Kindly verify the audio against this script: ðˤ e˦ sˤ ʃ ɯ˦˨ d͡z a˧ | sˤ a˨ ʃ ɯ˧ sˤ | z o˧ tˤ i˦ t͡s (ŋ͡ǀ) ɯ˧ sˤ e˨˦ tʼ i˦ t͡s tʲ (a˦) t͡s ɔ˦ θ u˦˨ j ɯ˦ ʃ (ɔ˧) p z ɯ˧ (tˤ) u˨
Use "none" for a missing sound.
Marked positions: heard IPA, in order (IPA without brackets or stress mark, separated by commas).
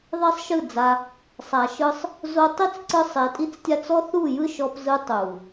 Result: ǀ, a˦, ɔ˧, tˤ